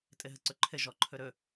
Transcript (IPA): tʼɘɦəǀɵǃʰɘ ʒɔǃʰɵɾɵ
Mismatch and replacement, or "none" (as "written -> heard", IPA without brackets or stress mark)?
none